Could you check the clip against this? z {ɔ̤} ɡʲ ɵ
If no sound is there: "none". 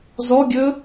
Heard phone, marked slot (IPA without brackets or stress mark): ɔ